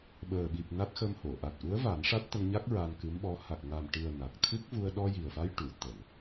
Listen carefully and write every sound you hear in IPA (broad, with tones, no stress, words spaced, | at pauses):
ɓəː˨˩ɓi˨˩p̚ na˦˥t̚xə˧mho˨˩˨ ʔa˨˩t̚ʔu˧˥ə̯ va˨˩˦nʂa˦˥t̚t̪ə˧ŋɲa˦˥k̚ ɹa˧nkɨ˧˥mɓɔ˧˥ ha˨˩k̚ŋa˨˩mʈɨ˨˩ə̯ na˨˩k̚t̪ʰɨ˦˥k̚vu˧ə̯ ɗɔ˧ji˨˩ə̯fa˧j ʈu˨˩˨ t̪ə˨˩˨ŋ